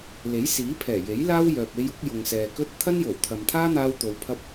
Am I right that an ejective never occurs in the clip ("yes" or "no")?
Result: yes